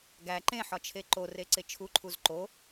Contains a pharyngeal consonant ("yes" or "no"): yes